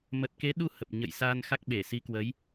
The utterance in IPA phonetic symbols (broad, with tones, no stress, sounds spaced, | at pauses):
m ə˨˩ t̚ k e˨˦ ɗ u˧ h ə˨˩ p̚ ɲ ə̰˧˨ j s aː˧ n x a˦˥ k̚ ɓ e˧˩ s i˨˦ k w ə˨˦ j